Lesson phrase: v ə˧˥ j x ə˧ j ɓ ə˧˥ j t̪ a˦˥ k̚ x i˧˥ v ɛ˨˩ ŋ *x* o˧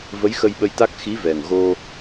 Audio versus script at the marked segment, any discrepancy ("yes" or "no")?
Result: yes